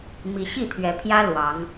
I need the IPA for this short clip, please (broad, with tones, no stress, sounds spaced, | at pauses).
m i˨˦ ɕ i˥˨ t̪ʰ ɥ ɛ˨˦ pʰ j ä˦ l w ɑ˨˦ ŋ